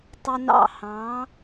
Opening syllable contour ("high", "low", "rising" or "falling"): high